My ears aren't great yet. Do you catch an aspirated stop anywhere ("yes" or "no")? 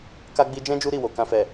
no